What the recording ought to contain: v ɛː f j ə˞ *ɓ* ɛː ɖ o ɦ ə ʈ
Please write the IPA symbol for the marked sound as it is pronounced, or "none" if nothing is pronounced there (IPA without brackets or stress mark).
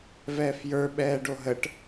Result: ɓ